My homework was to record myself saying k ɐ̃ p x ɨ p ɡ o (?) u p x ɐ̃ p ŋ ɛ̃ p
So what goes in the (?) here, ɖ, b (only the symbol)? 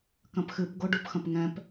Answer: ɖ